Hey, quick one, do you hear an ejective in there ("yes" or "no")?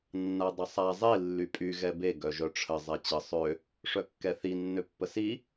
yes